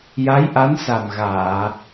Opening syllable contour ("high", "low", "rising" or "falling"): rising